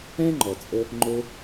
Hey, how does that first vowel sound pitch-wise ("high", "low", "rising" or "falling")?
high